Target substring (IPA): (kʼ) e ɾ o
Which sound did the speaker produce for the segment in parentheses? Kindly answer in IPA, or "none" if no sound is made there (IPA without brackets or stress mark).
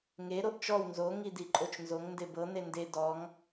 ŋ